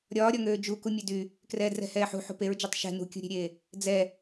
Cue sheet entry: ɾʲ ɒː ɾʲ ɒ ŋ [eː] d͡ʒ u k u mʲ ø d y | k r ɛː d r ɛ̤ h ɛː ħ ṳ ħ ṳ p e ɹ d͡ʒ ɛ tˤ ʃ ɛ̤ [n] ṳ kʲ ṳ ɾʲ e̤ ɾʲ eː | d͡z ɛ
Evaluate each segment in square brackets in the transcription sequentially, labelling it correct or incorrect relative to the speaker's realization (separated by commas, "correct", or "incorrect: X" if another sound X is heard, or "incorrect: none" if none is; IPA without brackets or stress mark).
incorrect: øː, correct